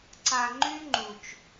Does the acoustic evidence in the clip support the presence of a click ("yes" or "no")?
yes